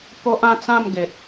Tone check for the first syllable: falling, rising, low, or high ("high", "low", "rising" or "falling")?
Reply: high